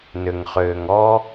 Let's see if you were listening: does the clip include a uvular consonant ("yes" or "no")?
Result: yes